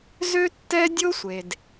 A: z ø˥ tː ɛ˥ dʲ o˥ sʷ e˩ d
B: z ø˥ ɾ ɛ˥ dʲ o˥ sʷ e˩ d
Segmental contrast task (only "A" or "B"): A